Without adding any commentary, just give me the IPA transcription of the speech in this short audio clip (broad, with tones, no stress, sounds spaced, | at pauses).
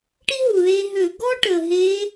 ʈ i˥ ɦ u˩ ð e˧ ɦ ø˧˩˧ ɡ ɔ˥ ʈ ə˩ ɦ e˧˥